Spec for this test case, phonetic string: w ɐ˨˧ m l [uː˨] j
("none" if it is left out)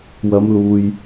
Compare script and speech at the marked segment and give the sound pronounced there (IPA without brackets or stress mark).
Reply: uː˨